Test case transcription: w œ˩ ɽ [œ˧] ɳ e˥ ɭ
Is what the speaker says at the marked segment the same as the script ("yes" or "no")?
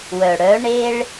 no